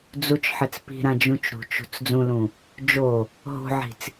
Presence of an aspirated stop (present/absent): absent